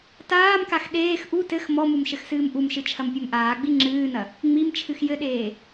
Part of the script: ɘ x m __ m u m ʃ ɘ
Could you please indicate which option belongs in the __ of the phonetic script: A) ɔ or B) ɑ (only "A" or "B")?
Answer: A